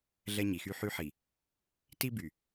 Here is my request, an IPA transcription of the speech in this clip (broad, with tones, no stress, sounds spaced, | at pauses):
ɮ ɛ˦ ɲ i˨ x y˦ ħ y˦ ħ i˨ | t i˦ b y˨